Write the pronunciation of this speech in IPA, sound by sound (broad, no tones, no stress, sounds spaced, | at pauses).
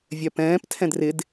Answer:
vʲ œ p ɛ̃ː p tʰ ɛ̃ d r ɪ d